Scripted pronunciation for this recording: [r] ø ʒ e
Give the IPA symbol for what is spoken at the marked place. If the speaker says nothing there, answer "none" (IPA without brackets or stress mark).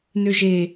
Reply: n